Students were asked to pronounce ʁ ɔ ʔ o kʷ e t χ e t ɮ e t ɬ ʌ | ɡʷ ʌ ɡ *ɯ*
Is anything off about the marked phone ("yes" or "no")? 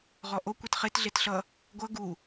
yes